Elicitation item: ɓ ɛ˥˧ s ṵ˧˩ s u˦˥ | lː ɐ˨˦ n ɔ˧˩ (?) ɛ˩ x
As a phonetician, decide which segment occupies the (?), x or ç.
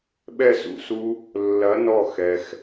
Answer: x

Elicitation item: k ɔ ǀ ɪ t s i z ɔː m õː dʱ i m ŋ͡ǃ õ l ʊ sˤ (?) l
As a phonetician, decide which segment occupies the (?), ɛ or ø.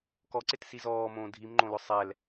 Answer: ɛ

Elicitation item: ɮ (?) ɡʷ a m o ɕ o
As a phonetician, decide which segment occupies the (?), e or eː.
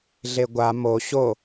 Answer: e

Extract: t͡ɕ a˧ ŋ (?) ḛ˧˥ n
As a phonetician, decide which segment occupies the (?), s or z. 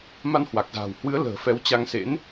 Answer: s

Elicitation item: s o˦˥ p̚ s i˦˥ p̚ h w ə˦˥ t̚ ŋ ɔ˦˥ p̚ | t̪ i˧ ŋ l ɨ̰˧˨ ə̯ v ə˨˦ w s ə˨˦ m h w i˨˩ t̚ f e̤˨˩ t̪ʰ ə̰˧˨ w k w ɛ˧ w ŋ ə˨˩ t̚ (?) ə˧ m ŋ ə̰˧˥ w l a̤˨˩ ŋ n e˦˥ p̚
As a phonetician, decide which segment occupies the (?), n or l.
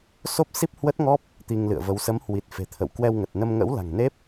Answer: n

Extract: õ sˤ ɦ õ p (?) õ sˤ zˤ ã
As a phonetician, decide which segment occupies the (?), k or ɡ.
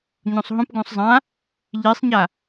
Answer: ɡ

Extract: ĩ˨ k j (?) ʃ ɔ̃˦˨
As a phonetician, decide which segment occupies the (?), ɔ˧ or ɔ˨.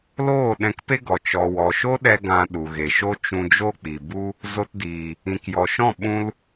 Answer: ɔ˨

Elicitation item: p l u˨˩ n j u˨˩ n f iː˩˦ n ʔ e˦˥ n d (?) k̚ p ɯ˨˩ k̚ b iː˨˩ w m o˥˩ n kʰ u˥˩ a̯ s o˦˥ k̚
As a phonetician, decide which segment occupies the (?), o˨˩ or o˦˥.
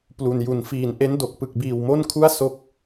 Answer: o˨˩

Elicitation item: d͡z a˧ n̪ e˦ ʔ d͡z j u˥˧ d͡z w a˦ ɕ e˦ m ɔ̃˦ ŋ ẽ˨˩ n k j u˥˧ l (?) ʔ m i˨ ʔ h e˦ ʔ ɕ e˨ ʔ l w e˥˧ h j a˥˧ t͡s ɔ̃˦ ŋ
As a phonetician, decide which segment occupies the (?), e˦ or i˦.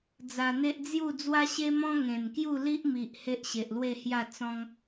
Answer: i˦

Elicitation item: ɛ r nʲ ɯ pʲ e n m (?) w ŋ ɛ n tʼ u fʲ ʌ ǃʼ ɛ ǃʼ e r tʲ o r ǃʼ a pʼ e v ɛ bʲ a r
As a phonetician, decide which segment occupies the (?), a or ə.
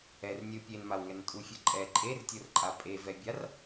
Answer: a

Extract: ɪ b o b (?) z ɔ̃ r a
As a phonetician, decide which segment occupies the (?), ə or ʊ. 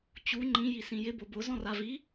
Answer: ʊ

